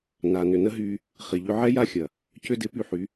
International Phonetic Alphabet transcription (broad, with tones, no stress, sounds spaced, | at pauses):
n a˨ n ʏ˨ n ə˦ ɦ yː˧ | χ i˨ ʎ ʏ˧ ʕ ɛ˦ j a˦ xʲ ɐ˨ | c ʏ˧ d ɪ˨˦ p y˧ ħ y˨˦